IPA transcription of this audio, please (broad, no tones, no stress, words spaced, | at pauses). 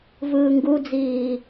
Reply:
vɯːŋɡud͡ziː